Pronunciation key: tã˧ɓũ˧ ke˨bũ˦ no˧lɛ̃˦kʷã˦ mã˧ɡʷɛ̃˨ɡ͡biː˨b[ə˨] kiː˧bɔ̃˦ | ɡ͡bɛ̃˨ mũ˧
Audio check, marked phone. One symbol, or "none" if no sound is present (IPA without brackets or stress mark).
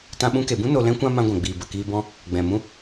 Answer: ə˨